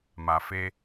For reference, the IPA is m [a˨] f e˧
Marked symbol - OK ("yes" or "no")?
yes